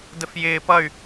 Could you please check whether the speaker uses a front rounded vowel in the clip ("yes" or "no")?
yes